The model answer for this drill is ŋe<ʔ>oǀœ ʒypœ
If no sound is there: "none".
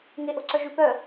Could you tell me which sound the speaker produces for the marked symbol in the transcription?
ʔ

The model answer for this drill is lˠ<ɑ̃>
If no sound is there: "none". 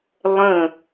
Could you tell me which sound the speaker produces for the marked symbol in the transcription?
ə̃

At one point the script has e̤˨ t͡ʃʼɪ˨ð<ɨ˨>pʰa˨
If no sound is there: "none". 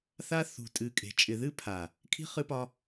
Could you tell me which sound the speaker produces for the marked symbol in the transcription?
ɨ˦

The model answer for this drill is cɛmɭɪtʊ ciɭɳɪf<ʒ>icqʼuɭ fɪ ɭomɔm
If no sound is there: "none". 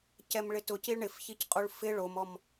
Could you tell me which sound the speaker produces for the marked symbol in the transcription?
ç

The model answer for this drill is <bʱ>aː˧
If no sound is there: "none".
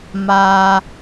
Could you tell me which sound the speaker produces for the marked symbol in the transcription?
m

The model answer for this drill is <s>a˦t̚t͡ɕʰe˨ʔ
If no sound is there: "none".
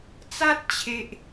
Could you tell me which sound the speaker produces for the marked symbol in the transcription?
t͡s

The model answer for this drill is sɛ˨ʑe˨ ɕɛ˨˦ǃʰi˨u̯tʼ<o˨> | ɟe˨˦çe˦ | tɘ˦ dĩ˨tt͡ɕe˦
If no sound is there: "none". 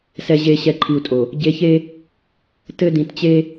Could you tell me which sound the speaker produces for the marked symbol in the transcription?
o˨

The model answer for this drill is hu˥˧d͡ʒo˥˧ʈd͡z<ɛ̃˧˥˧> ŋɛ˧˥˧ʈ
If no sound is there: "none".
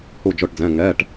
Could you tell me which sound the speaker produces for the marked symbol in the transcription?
ɛ̃˧˥˧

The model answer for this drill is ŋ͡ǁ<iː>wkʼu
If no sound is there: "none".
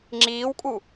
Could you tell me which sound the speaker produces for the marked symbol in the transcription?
iː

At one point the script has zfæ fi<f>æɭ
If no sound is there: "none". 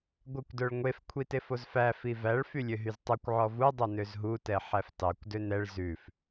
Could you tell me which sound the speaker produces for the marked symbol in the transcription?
v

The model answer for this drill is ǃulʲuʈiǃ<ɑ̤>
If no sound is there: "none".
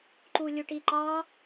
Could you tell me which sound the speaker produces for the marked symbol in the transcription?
ɑ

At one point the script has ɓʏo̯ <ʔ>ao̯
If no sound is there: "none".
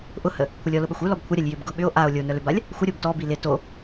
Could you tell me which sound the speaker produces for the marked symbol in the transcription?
ʔ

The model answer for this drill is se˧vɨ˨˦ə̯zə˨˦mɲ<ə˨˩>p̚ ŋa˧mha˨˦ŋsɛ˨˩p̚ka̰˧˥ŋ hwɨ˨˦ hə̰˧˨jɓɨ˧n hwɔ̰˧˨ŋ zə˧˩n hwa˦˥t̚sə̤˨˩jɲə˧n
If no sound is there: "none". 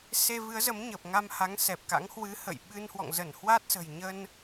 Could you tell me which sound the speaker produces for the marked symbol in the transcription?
ə˨˩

